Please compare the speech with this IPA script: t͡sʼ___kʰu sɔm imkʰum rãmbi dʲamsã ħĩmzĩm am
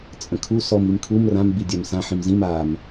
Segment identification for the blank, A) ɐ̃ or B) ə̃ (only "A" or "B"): B